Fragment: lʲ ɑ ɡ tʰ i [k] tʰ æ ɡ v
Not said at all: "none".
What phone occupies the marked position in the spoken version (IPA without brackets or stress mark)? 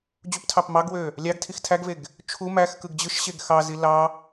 x